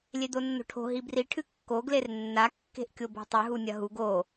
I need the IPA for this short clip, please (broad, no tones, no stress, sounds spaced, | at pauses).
lʲ e d̪ o nː o̤ ʈʰ o̤ ɦ i b r i ʈʰ ɨ kː o ɡ l e r nː a kː e̤ ʔ kʲ o b o̤ tˤ ɨ ɦ u nʲ ɐ ɦ u ɡ o